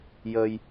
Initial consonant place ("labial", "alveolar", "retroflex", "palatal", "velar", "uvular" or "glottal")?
palatal